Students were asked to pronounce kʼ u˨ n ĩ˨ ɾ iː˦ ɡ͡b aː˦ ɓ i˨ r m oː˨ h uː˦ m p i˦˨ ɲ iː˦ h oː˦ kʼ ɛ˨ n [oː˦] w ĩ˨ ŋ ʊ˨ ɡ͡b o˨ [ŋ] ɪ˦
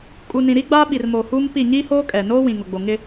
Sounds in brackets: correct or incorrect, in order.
correct, correct

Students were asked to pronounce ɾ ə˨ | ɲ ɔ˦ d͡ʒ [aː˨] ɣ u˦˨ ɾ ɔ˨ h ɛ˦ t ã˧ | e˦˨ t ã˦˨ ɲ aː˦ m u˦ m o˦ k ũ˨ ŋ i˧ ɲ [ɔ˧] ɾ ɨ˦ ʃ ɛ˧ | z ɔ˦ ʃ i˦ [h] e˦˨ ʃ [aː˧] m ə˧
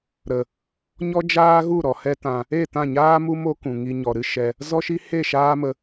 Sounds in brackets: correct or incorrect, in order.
incorrect: aː˦, incorrect: ɔ˨, correct, incorrect: aː˦

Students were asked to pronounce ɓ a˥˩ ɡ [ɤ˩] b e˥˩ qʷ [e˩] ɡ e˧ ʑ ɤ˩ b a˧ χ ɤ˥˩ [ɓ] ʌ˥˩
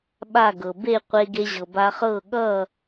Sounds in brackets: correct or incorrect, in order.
correct, incorrect: e˧, incorrect: ɠ

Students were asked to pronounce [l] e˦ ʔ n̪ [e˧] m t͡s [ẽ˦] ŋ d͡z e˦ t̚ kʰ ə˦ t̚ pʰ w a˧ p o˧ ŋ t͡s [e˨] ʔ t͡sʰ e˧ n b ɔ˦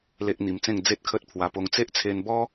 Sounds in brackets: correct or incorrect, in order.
correct, incorrect: i˧, incorrect: ẽ˥˧, incorrect: e˦

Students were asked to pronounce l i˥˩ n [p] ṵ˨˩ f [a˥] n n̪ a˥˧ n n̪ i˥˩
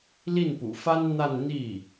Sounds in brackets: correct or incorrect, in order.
correct, correct

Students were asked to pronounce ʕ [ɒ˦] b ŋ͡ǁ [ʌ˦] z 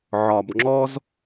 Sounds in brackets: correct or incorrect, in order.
incorrect: ɒ˨, incorrect: ɔ˦

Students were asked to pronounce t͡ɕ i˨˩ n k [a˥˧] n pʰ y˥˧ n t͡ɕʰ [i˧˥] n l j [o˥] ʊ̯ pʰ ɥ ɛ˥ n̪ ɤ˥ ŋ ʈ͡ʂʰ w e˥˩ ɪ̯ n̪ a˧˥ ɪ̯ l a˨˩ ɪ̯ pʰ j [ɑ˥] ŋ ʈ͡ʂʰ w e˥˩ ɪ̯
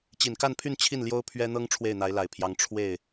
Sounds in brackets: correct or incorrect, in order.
correct, incorrect: i˥˩, correct, incorrect: ɑ˧˥

